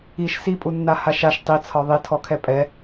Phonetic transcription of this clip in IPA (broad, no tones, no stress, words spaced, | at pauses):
iʃ sipʼunːa haʃaʃ tˤit͡sʰɒ ðˤitʰɔkʰɛ pʼɛ